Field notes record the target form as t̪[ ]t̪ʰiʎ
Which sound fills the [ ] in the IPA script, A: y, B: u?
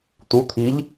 B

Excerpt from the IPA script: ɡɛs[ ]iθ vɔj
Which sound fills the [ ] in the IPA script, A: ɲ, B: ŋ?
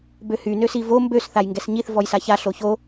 A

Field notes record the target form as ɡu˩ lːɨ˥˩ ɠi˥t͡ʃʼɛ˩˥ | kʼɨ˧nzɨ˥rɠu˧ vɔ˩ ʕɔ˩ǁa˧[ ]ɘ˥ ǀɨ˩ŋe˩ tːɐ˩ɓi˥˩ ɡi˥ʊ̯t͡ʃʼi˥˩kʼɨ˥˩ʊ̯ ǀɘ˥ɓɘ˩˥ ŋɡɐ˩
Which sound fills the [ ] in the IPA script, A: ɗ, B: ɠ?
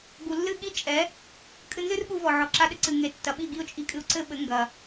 A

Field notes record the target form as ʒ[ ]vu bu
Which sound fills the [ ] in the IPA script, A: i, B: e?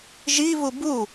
A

